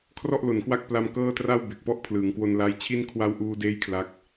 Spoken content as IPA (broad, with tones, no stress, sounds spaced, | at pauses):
kʰ r ɔ˥˩ ʔ l o˨˩ n k w a˥˩ k̚ p l a˧ m k ɤː˥˩ t r a˥˩ w b e˨˩ k̚ p ɔ˥˩ ʔ pʰ l ɯː˩˦ ŋ k w o˧ n l a˧ j t͡ɕʰ i˥˩ n kʰ w a˦˥ w ʔ uː˧ d eː˦˥ j kʰ l a˦˥ k̚